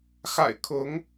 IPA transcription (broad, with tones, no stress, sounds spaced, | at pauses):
x a̰˨˩ ɪ̯ kʰ ʊ˨˦ ŋ